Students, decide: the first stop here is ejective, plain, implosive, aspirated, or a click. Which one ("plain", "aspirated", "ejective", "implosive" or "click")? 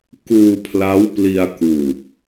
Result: plain